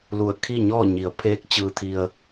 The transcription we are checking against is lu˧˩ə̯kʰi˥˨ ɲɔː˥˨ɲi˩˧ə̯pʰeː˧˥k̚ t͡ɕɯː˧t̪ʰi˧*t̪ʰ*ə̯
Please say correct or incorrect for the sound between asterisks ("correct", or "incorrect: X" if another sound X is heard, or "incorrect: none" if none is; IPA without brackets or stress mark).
incorrect: none